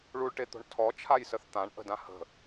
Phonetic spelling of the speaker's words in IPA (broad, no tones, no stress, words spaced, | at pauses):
ɭuɭʈet̪o̤ɳ tʰɔt͡ʃʰajsəθ t̪ãɳ ʔə̤dã hə̤